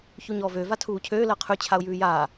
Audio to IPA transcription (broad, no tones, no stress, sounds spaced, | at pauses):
ç u ɲ ɔː v ø v a tʰ uː cʰ øː l ɜ qʰ ʉ t͡ɕʰ a ʊ̯ j ʉː j aː